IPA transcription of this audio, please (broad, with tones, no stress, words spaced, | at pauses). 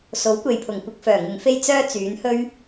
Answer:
so˨˥wkʷe˨jpʰʊ˨˩ŋkʷɪ˧k̚ fœː˨˩ŋɪ˨ŋfe˥j t͡sœː˥ t͡syː˨˥nhɵ˥ɥ